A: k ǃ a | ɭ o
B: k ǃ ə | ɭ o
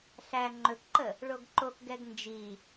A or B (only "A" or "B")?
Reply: B